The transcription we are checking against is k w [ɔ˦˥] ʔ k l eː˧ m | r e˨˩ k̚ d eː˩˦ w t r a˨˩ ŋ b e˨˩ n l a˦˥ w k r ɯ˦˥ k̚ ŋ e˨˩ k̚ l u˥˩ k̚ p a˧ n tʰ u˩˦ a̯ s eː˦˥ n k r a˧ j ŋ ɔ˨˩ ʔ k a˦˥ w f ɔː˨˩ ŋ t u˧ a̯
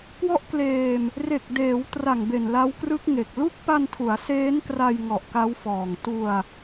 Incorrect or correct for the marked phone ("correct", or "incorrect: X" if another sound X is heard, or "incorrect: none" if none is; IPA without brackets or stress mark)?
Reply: correct